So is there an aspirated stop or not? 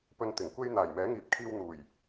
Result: yes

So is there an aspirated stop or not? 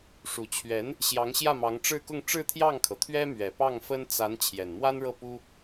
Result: yes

